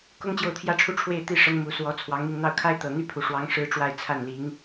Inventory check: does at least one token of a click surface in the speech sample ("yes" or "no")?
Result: no